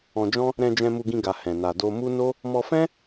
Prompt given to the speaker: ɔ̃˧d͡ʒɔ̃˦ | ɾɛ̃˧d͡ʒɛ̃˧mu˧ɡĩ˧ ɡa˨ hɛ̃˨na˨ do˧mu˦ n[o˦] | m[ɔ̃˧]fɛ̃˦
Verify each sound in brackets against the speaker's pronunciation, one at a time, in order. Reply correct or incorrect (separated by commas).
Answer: correct, incorrect